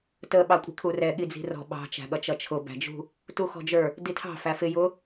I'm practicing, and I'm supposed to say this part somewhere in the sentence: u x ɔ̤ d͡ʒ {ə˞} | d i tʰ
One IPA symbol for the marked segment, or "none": ə˞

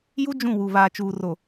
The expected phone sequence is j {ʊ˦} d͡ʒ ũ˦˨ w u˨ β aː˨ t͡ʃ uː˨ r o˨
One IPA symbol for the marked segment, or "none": u˦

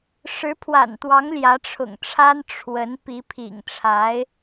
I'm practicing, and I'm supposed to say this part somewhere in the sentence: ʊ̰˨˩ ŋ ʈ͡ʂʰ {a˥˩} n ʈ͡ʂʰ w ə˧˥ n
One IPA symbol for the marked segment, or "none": a˥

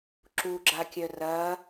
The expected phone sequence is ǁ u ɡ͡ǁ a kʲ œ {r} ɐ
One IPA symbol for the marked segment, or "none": r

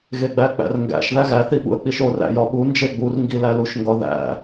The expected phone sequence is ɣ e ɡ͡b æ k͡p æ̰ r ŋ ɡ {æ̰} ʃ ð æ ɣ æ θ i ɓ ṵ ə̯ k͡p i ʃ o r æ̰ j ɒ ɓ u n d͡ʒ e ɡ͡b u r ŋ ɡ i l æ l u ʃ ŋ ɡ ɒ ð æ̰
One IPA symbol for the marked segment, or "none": æ̰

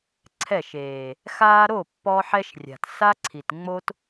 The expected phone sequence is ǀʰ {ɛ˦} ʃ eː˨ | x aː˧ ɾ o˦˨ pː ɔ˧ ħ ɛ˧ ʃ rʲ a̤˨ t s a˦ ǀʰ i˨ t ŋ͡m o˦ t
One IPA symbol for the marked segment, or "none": ɛ˦˨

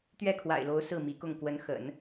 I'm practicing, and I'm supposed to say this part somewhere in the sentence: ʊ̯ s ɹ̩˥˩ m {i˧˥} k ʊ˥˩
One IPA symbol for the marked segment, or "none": i˧˥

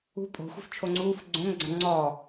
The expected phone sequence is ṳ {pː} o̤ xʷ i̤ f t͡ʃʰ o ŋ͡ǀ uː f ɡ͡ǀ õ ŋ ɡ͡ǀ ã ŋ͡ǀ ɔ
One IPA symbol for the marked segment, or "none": pʼ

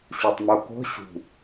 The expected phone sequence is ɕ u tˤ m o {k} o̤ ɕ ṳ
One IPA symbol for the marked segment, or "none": k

